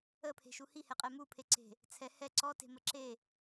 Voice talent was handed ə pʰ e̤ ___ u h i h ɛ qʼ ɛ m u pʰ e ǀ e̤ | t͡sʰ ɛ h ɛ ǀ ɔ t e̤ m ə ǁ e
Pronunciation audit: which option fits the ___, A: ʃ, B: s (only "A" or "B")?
A